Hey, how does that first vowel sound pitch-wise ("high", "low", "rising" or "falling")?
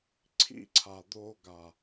high